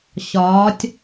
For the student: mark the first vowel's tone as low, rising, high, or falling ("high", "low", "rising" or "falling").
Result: rising